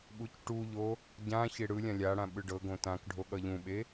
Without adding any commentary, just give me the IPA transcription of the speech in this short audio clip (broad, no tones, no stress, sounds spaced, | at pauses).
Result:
ɓ u c ʈ u ʎ o | ɟ ã ç e ɽ ɯ lʲ ã lʲ a ɽ ã ɓ ɯ ɖ ɤ ɡ õ t ã k ɖʱ o ɠ ʌ ʎ ũ ɓ e